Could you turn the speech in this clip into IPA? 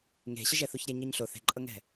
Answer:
ŋ e̤ ɕ ə ʒ ɛ θ u ç ɾʲ ɛ ɲ ɤ ɲ ɬ o θ e̤ ǃʼ ɤ ŋ ɛ̤

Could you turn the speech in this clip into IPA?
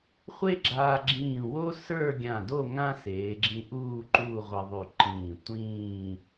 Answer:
χʷ e˥ ɡ͡ǁ aː˧ ɡ͡ǁ ĩː˧˩ w o˥ s ə˞˥˧ ɡʲ ã˧˩ d o˥˧ ŋ ã˥ s eː˩˧ ɡ͡ǁ ĩ˧ ʔ uː˥˧ ǃ uː˥˧ ʁʷ e˧ ðˤ y˧˩ ǃ ĩː˧˩ tʷ ĩː˥˧

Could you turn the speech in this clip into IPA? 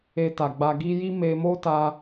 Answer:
e˧ t a˨ ɡ͡b a˧ ɡ i˦ j i˦ m e˧ m o˦ t a˧

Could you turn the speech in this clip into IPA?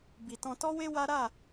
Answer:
b i˨ t ɔ̃˧ t ɔ˦ w e˦ w a˦ ɾ a˦˨

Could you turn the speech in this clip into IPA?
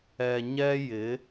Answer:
ɛ˨ ɲ ɛ˦ j ɪ˨˦

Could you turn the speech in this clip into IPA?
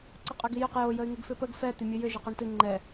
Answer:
ǀ ə qʼ ʏ ɡ i j ʏ q j o j ə y̯ ŋ ɨ ɡ f ʏ p ə ɡ f ɛ t̪ ʏ mʲ ɨ j ʏ ʒ ʏ q o ɳ t ɨ ŋ͡ǃ ɛ

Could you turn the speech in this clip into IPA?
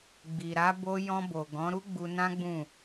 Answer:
ɡ͡b i˨ ɾ a˨˦ b o˧ j ɔ̃˧ b o˨ ɡ ɔ̃˨˦ ɾ u˦ ɡ͡b u˧ n ã˦ ɡ͡b ũ˦˨

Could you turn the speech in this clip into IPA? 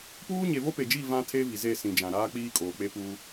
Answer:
p uː˦ ɲ e˨ v o˦ p e˨ d͡ʒ i˦˨ v ã˦ tʰ eː˦ v i˨ z e˦˨ s ĩ˨ d͡ʒ ã˨ ɾ aː˦ k͡p iː˦ kʼ oː˨ k͡p e˦ p uː˦

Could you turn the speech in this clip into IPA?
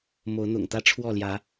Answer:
m o˨˦ ʊ̯ n̪ ʊ̰˨˩ ŋ t̪ ä˦ ʈ͡ʂʰ w ɔ˥˨ l j ä˨˦

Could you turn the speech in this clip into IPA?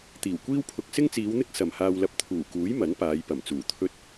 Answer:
t̪ iː˨˩ w kʷ iː˥ w pʰ ʊ˧ k̚ s ɪ˥ ŋ t͡s iː˨˧ w n̪ ɪ˥ k̚ s ɐ˨ m h aː˧ w l ɐ˧ p̚ t̪ʰ uː˨˩ k uː˨˥ j m ɐ˨˥ n p aː˨˧ j p ɐ˨˩ m t͡s uː˨˩ t̪ʰ ɵ˧ t̚

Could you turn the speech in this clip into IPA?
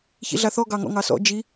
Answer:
ç ḭ ɮ a θ ɔ ɡ ɑ ŋ ɔ̰ ŋ ɑ s ɔ̰ d͡ʒ i

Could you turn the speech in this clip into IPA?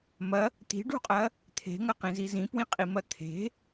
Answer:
m ɐ | t̪ i̤ ɖ ṳ qʼ ɐ | t̪ʰ e̤ ŋ ɐ q ĩ z i z ĩ p w ĩ qʼ i m ɐ t̪ʰ e̤

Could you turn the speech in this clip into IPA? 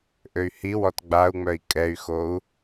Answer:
ʔ ø y̯ h i w ɔ t ɡ͡b a u̯ ŋ͡m œ i̯ kʼ ɛ y̯ x o u̯

